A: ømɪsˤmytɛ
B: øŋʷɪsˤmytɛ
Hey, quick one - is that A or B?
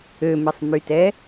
A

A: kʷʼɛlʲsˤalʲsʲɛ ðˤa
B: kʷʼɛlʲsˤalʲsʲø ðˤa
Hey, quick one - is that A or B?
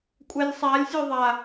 B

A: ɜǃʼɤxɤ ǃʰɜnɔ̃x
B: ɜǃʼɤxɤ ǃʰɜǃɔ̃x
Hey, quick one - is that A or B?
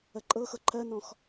A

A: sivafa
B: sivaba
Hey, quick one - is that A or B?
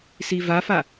A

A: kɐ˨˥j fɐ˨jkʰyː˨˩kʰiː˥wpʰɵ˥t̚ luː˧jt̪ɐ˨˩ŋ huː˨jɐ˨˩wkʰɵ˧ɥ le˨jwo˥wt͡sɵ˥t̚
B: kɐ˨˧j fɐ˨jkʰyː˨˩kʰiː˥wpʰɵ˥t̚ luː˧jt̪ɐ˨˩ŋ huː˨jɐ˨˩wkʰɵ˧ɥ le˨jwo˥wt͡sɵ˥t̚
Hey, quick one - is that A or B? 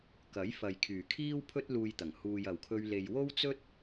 A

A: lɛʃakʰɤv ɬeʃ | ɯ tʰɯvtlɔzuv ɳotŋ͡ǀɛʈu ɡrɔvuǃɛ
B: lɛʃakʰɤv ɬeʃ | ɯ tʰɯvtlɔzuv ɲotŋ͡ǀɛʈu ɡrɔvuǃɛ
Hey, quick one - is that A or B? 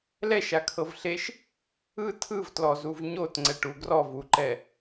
B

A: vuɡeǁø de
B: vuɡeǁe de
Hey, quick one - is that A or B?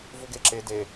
B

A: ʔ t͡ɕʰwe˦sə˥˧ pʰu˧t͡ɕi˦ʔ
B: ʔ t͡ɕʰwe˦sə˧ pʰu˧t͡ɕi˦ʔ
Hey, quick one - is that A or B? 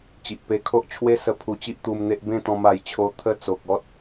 B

